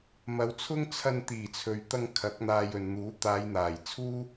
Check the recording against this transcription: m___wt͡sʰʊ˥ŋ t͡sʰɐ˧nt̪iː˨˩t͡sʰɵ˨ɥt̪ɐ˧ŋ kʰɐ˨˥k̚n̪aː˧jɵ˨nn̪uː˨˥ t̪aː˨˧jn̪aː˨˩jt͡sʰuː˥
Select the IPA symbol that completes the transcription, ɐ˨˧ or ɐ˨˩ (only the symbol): ɐ˨˧